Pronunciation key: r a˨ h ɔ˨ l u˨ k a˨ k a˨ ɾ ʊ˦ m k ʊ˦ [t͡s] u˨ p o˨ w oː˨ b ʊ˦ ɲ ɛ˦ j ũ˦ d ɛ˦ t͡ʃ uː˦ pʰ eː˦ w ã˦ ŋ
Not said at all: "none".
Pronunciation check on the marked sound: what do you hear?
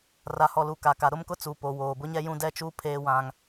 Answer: t͡s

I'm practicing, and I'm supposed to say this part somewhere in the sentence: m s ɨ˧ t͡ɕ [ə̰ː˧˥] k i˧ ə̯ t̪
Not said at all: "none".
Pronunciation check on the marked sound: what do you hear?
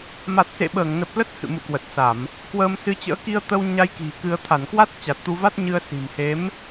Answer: ə̰ː˧˥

